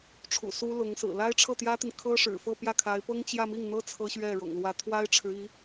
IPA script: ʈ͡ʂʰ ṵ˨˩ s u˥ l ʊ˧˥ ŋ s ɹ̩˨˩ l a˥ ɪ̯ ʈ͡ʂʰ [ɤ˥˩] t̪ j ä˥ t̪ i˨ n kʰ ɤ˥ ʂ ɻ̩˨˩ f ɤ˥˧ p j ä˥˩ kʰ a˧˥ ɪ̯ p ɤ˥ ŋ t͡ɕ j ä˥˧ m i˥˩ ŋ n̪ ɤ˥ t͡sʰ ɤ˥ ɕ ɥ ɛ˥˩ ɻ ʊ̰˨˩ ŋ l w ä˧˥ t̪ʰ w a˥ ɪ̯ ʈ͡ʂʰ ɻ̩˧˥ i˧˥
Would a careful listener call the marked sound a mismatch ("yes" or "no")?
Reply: no